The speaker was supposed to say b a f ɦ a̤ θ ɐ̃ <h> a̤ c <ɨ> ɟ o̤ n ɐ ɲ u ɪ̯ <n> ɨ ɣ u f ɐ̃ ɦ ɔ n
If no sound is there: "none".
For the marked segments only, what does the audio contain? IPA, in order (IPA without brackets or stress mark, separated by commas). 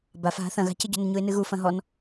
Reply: ɣ, ɨ, n